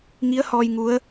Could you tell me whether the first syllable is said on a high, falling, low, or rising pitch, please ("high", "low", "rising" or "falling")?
rising